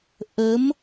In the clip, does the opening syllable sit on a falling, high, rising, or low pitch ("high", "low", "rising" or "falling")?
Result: rising